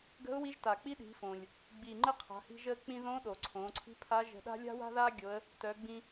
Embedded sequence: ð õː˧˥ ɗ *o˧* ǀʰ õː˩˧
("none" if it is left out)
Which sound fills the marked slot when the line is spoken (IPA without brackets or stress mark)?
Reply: o˩